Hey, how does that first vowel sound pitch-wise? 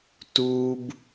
high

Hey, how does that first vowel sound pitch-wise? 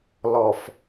low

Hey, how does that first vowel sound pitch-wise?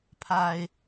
low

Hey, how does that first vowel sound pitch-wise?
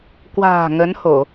low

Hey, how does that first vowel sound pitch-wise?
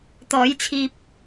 rising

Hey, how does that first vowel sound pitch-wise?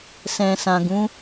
low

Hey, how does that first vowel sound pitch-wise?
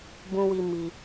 high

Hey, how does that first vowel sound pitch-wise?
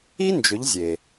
high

